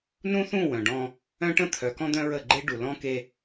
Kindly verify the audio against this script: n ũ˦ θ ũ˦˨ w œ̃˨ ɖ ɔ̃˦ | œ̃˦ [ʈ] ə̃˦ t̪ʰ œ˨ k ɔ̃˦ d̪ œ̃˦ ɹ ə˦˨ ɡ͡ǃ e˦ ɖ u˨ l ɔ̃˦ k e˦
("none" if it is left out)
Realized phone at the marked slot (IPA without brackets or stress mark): ʈ